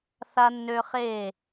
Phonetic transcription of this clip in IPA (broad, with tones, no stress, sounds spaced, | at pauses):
θ a˧ nː ø˧ χ e˦˨